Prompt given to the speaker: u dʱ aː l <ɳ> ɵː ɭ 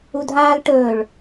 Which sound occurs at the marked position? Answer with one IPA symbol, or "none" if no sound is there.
ʈ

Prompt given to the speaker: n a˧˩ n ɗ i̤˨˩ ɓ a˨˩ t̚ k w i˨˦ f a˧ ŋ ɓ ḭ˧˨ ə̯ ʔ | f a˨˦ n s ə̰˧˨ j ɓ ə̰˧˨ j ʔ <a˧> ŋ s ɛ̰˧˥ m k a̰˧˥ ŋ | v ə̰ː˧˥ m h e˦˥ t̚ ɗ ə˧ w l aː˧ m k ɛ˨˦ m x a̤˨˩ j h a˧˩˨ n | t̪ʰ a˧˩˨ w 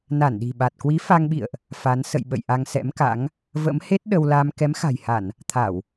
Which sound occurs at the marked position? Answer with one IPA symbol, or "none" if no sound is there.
a˧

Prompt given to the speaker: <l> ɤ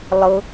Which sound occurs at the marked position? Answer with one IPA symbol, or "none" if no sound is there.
lˠ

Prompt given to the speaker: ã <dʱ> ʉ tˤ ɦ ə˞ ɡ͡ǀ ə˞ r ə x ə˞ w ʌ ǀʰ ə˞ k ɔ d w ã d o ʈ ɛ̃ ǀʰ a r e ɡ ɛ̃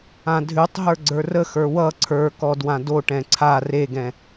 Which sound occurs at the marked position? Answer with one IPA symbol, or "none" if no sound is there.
dʱ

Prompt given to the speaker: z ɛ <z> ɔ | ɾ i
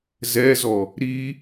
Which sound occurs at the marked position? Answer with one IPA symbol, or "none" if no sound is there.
z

